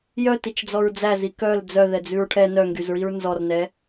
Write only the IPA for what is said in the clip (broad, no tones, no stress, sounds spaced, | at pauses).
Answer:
j œ t i t͡ʃ d͡z ɔ ɹ d͡z æ z i k œ l d͡z œ ð ɛ d͡z ʉ ɹ ʈʰ ɛ n œ ŋ ɡ y z ɹ i ɹ n z ɔ r n ɛ